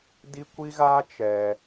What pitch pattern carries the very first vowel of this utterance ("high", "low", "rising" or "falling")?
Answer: high